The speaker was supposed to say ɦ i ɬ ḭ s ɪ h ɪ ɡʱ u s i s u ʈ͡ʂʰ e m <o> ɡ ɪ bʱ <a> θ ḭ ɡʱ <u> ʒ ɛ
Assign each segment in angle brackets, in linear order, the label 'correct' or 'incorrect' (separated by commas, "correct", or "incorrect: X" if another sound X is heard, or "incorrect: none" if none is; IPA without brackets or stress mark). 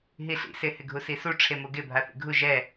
correct, correct, correct